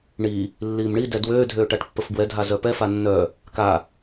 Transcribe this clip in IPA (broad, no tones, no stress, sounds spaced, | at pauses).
ɳ i | lː iː m ɳ i d ɛ d w øː dʱ øː ʈ a ʈ pː ə f b w ɛ dʱ a z œ p ɛ f a nː œ | k a